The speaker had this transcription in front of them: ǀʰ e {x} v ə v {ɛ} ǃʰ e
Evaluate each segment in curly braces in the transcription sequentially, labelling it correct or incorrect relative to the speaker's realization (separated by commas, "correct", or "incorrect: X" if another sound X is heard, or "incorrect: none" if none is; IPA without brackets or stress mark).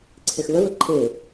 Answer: correct, incorrect: ə